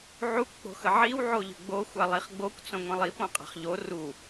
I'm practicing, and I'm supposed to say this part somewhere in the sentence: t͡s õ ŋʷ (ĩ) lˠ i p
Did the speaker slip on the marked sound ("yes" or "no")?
no